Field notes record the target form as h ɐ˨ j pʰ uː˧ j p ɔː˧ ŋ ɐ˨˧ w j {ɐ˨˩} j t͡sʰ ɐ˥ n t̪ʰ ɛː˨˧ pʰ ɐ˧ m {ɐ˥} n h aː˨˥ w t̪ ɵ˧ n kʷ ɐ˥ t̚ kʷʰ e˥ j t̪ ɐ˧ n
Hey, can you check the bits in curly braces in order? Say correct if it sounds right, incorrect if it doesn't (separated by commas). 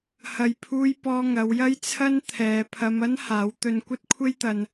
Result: incorrect, correct